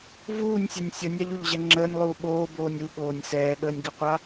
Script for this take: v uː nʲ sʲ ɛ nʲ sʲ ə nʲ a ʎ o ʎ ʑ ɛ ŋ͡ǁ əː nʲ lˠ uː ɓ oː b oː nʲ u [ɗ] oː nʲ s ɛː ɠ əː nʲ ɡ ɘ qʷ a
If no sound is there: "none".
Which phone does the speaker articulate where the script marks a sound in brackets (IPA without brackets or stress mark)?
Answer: ɠ